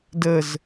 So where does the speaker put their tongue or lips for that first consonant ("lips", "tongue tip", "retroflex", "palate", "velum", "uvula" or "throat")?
tongue tip